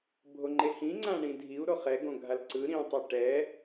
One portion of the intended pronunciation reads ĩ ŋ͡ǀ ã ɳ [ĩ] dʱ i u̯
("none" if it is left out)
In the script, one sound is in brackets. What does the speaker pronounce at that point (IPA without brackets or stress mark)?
ĩ